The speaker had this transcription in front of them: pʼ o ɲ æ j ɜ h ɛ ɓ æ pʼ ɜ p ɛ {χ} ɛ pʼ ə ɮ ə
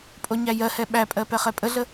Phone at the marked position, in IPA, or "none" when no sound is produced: χ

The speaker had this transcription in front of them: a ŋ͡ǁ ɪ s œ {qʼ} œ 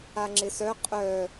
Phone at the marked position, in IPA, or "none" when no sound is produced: qʼ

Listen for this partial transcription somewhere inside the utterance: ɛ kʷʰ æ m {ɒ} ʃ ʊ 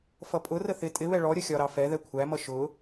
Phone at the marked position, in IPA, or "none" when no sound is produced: ʌ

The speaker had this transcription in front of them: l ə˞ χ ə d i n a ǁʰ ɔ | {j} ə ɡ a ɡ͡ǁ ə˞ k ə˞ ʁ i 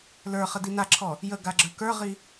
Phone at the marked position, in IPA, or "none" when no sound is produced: j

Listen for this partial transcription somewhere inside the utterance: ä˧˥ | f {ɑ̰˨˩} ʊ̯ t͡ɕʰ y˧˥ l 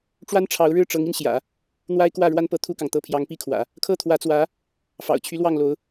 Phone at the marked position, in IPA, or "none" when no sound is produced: ɑ̰˨˩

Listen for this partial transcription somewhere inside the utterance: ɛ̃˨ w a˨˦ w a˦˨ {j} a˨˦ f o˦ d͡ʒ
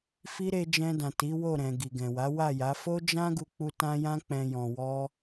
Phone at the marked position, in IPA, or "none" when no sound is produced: j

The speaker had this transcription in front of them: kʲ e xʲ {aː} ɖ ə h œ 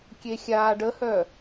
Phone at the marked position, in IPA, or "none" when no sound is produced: aː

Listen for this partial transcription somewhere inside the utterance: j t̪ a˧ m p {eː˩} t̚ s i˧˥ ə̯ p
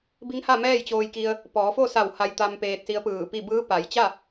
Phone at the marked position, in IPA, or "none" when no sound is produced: eː˧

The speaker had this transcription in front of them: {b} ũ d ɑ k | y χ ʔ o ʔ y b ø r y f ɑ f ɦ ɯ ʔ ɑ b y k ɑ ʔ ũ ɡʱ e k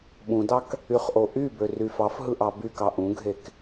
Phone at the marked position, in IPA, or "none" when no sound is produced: ɓ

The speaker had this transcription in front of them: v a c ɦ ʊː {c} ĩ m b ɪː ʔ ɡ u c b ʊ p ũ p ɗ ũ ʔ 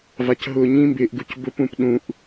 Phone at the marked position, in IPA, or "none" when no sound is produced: ɲ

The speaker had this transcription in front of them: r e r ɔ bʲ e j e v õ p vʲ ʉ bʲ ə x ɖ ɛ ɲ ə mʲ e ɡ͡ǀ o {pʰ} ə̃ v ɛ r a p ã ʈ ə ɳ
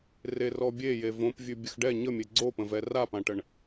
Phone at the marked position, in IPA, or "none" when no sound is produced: p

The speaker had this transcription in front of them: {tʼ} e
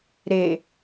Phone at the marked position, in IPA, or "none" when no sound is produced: ɾ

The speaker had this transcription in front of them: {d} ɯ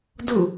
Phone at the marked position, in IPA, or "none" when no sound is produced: d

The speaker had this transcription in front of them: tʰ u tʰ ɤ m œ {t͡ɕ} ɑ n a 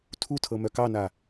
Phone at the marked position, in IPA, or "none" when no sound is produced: k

